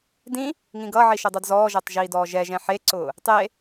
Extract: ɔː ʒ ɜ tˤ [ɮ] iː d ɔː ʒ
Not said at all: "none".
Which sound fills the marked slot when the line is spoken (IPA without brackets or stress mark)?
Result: ʒ